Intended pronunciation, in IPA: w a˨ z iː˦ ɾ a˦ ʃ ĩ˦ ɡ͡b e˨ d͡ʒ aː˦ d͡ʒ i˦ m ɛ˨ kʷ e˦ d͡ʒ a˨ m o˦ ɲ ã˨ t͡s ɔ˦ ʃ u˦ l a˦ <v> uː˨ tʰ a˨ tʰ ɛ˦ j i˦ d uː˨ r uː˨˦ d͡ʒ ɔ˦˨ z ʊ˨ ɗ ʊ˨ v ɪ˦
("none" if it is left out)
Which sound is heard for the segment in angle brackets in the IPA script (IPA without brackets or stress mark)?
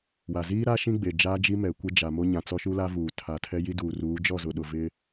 v